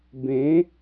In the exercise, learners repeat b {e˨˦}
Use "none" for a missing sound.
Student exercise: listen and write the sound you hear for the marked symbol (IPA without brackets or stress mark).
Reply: ẽ˨˦